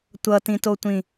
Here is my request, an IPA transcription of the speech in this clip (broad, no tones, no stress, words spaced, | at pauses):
tʷʌtĩtotʷĩ